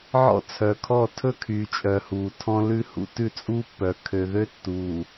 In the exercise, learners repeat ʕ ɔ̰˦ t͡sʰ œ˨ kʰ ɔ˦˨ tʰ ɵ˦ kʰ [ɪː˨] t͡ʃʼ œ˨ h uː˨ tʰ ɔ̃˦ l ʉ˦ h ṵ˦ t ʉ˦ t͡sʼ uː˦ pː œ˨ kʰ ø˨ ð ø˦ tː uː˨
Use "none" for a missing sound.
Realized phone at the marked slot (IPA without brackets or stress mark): yː˨